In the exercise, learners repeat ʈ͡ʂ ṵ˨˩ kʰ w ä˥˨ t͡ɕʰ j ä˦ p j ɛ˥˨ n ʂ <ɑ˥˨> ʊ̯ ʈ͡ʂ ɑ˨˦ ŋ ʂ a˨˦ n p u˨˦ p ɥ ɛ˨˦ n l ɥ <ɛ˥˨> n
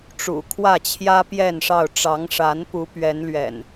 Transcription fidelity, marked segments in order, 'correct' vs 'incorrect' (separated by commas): correct, incorrect